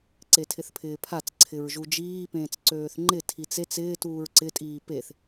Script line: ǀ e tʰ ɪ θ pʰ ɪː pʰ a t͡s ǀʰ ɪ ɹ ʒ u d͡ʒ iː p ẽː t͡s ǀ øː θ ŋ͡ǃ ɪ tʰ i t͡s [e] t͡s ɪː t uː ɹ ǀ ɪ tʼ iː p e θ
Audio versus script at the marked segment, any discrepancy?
no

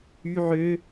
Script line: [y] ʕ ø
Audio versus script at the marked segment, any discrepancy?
no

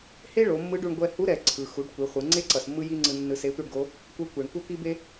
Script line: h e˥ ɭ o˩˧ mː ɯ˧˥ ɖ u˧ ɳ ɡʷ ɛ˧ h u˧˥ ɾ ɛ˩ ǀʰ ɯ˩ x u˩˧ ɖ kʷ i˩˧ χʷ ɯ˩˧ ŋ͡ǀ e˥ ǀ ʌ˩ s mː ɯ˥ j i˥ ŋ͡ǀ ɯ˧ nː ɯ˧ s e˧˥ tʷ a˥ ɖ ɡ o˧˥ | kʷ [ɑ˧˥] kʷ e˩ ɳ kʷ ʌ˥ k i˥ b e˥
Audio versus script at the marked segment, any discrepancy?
yes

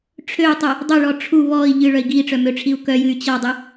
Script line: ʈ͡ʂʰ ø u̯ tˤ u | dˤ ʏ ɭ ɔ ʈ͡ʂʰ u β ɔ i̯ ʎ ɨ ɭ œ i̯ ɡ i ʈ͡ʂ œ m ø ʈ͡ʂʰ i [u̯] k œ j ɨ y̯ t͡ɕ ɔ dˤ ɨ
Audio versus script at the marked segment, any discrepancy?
no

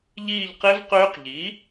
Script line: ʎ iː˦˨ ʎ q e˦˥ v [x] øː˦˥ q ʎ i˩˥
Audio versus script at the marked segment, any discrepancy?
yes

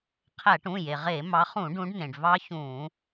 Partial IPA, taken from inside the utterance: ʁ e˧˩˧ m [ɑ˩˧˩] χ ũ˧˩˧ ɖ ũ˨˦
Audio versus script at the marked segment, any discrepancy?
yes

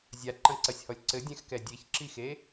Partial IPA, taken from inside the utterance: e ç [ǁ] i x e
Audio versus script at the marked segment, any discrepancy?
no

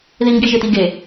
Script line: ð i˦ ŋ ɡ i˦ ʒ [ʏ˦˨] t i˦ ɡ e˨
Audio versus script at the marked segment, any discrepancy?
yes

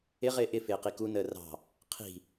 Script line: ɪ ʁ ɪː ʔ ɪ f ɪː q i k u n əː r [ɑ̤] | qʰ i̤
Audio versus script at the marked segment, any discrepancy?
no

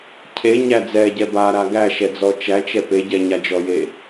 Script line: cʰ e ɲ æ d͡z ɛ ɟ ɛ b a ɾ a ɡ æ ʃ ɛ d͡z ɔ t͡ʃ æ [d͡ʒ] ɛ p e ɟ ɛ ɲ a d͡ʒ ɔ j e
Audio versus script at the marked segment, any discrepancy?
yes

